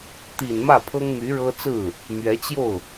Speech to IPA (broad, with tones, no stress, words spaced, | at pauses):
t̪i˨˩n mä˥˩pʰɤ˥ŋmy˧˥ɻɤ˥ t͡sɹ̩˥˩ | mɥɛ˧˥t͡ɕjo˥˩ʊ̯